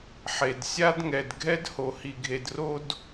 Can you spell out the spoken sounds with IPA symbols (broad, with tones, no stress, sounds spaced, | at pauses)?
ħ e˩ d sʲ a˥ d ŋ ɛ˩ d ɡʱ ɛ˥ d h o˩ h i˩ ɡʱ e˩ d r o˥ d